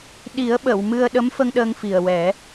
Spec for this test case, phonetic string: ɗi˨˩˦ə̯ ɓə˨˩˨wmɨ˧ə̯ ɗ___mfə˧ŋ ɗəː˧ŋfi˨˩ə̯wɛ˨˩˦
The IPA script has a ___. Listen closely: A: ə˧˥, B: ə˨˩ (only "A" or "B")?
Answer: A